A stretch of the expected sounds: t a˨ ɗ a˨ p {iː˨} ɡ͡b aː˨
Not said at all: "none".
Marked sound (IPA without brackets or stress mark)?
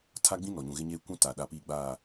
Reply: iː˨